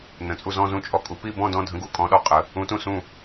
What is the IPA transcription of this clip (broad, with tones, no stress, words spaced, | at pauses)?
nə̃˧˥t͡sʼu˥˧ zɔ̃˥˧zũ˥˧ t͡ʃʼɔ˥˧kʼu˧˥ pi˥˧bɔ̃˥˧dɔ̃˥˧dʱə̃˧˥ ɡu˧˥kʼɔ̃˧˥ɗɔ˧˥qʼə˧˥ | ũ˧˥tũ˥˧sũ˥˧